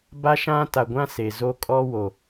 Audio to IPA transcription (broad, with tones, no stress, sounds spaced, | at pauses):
b a˦ ʃ ã˦ t a˨ ɡʷ ã˦ s e˨ z o˦ kʼ ɔ˦ w o˨